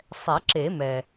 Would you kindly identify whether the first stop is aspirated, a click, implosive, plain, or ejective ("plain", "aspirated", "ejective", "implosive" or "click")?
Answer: click